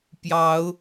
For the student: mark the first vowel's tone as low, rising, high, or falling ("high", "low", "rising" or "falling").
rising